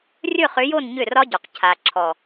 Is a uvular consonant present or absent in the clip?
present